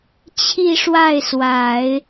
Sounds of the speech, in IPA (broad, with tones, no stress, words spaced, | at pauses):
t͡ɕʰi˥˧ʂwa˥˩ɪ̯swa˨˩˦ɪ̯